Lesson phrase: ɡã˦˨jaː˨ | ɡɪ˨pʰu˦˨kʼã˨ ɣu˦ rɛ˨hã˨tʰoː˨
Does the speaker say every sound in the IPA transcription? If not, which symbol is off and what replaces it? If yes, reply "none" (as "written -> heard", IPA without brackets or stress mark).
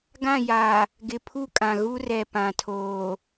h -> p